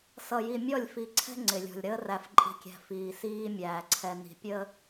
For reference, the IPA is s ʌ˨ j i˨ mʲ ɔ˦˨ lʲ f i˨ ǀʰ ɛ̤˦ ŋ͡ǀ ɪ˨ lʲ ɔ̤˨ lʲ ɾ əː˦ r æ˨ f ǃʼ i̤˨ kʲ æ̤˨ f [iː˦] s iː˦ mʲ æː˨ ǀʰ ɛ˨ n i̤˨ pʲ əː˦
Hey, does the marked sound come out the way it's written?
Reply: no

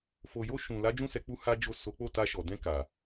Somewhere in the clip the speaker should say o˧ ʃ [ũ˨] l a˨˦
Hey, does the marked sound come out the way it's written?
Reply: yes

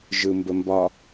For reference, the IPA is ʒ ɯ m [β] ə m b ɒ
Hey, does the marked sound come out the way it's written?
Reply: no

